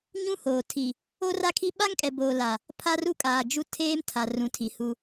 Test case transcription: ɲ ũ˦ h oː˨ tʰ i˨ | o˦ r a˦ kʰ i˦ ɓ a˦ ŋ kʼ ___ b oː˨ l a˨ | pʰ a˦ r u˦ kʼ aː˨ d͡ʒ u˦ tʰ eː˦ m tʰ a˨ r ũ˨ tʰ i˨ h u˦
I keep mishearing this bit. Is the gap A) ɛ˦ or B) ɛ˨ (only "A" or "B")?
B